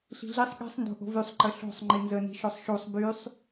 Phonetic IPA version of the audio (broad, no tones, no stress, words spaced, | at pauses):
ɬi̤ɮisˤ ɠi̤sˤ ndo̤ʔo̤vysˤ ǃəɬo̤sˤ ŋ͡ǃinzə ni̤ʃosˤʃusˤ bysˤ